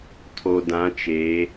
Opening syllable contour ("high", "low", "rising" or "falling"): low